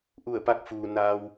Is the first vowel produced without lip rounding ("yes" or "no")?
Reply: no